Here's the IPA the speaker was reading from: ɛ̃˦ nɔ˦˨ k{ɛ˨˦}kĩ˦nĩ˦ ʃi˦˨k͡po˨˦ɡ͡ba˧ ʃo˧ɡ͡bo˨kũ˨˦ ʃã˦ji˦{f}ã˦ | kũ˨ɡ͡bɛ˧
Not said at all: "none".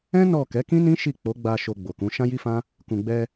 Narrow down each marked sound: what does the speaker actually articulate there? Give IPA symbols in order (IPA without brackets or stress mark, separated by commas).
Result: ɛ˨˦, f